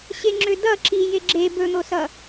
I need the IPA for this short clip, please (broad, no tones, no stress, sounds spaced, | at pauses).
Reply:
ɕ e ŋ͡ǁ ø d ʌ ǁ i j e ɡ͡ǁ e b ɵ n̪ o s ʌ